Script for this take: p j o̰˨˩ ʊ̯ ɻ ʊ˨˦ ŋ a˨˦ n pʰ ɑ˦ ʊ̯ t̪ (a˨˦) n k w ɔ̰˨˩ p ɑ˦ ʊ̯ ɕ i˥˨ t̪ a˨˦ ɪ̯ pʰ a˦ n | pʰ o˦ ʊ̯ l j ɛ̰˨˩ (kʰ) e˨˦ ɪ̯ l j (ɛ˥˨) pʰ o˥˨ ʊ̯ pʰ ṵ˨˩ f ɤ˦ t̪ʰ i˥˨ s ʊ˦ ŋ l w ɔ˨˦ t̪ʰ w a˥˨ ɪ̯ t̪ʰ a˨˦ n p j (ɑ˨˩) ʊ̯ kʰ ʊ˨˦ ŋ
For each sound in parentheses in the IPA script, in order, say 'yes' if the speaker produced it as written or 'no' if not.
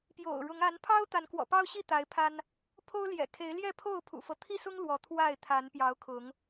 yes, yes, yes, no

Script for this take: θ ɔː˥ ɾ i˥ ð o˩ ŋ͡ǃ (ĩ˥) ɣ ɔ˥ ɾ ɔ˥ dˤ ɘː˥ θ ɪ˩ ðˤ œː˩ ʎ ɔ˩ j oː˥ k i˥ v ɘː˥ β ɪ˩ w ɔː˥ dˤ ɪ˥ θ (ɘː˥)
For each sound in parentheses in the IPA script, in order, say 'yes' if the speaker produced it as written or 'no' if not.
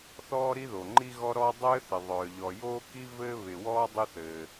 no, no

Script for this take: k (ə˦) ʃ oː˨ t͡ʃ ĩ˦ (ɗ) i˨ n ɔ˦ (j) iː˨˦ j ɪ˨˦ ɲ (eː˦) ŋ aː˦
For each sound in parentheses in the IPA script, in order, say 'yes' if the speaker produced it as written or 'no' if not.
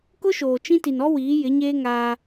no, no, no, yes

